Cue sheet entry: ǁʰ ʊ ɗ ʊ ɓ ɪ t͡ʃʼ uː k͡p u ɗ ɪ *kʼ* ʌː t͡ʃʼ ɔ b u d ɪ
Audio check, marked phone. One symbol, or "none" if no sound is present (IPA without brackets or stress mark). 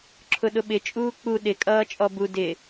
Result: kʼ